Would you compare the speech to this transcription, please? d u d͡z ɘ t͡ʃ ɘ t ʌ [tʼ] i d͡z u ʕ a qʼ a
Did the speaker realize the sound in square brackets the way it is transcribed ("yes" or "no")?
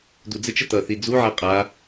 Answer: no